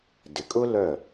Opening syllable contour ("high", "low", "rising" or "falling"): low